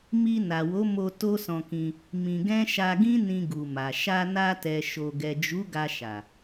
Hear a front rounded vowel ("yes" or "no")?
no